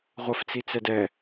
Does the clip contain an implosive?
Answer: no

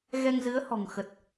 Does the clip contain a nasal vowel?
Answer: no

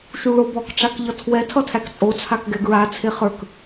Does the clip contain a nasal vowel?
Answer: no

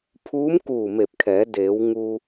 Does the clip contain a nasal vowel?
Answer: no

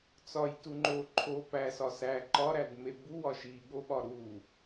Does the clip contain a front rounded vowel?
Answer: no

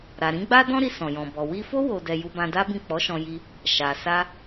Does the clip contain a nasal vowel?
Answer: yes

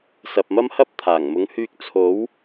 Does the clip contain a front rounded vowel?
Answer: yes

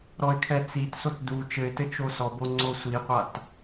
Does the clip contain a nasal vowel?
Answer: no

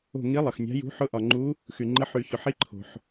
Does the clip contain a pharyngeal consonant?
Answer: yes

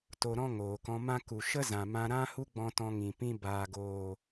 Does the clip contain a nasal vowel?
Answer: yes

